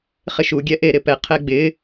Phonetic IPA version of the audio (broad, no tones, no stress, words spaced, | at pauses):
χɪʃuɡʲɛ ʔeɾɪpɛqʰɛ ɡ͡bɪ